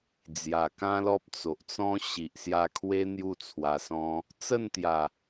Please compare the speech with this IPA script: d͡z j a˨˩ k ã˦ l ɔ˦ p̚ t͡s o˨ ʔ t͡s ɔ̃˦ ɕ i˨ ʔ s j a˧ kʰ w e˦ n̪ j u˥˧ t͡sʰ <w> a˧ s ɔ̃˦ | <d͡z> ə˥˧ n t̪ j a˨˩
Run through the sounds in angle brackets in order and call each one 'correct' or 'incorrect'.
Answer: correct, incorrect

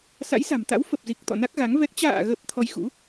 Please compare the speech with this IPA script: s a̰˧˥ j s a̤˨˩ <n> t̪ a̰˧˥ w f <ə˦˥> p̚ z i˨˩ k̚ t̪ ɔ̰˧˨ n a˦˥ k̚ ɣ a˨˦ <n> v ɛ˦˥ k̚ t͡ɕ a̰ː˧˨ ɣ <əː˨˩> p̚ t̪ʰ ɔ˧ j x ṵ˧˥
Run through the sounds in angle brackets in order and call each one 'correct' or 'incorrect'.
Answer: incorrect, incorrect, incorrect, incorrect

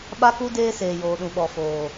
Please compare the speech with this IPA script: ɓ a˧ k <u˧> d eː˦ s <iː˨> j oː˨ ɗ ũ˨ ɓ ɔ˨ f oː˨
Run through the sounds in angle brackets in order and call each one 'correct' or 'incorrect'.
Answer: correct, incorrect

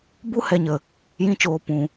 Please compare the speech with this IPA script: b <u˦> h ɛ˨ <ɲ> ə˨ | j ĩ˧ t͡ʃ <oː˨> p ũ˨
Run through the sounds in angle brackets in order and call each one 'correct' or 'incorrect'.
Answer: correct, correct, correct

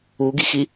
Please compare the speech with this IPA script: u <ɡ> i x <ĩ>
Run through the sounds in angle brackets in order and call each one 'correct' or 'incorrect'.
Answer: correct, incorrect

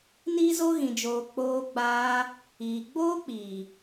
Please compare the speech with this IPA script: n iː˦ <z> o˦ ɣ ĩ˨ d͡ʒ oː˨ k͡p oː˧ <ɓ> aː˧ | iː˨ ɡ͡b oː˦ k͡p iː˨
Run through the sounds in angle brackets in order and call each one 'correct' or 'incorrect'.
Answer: correct, incorrect

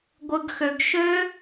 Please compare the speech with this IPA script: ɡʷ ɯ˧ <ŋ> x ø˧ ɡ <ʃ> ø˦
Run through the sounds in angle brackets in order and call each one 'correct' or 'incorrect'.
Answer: incorrect, correct

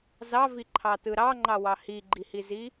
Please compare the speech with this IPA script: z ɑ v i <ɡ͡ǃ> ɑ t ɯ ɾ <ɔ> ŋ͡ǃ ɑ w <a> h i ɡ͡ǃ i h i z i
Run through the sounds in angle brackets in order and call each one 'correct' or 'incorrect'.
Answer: incorrect, incorrect, incorrect

